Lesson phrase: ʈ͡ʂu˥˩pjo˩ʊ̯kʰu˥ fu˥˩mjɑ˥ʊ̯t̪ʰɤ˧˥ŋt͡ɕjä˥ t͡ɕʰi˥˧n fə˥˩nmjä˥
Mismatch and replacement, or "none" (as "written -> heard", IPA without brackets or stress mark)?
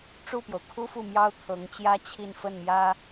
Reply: none